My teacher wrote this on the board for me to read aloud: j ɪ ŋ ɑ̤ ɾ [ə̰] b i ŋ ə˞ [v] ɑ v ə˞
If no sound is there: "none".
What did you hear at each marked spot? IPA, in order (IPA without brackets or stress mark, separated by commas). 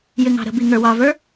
ə̤, w